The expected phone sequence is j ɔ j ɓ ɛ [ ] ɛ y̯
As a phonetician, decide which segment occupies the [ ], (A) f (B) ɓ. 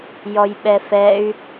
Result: A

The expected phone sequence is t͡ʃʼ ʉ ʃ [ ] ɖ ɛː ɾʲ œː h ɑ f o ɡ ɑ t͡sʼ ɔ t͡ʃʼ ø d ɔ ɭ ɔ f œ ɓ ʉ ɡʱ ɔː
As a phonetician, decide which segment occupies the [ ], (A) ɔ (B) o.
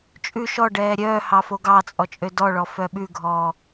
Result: A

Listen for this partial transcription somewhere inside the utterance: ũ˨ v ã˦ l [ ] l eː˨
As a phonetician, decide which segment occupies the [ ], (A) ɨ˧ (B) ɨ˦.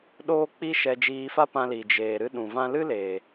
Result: B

